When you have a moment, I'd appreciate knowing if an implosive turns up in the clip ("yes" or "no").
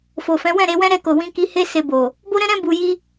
no